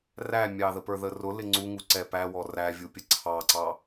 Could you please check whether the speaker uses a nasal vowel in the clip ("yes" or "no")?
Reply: no